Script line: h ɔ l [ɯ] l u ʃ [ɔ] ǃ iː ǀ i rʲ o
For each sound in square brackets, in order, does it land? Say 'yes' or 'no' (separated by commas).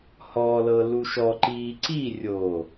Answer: no, yes